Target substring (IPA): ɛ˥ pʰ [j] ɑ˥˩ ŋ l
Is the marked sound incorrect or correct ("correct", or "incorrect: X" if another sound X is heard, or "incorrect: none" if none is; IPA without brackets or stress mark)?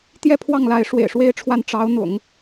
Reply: incorrect: w